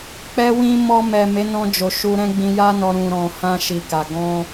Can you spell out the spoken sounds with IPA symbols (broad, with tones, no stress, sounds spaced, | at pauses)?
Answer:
k͡p ɛ˧ w ĩ˧ m ɔ˧ m ɛ˨ m e˨˦ n ɔ̃˧ d͡ʒ o˨ ʃ u˧ ɾ ɛ̃˦ ɡ͡b ĩ˧ j a˦ n ɔ˧ ɾ ũ˨ ɾ ɔ̃˨ h ã˧ ʃ i˨ k a˨ ɡ ɔ̃˧